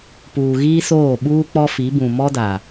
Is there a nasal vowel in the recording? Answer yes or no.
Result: yes